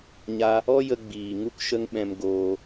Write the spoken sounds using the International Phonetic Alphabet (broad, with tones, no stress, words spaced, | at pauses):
ɲa˧ | ɔ˦jə˧ ɡ͡biː˨ ŋu˦kʃə˦ŋɓɛ̃˧m ɡoː˧